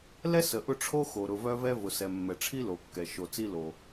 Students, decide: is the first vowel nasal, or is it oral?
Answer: oral